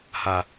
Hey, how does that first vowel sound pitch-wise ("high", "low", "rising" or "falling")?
low